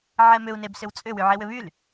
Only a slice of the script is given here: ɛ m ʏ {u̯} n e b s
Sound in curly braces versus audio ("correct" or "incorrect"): correct